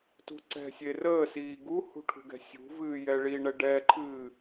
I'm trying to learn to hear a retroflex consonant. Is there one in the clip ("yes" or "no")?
yes